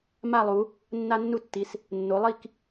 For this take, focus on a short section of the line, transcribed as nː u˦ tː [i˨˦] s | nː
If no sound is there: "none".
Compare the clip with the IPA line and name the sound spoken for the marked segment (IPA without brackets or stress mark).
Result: i˨˦